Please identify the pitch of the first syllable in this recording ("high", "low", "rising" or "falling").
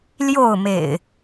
falling